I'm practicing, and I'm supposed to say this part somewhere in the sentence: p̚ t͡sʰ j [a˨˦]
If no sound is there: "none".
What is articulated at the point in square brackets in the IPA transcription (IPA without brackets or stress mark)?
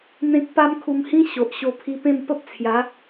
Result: a˨˦